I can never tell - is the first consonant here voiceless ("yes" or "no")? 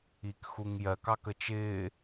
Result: yes